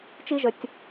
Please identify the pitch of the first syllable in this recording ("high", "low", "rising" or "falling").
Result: high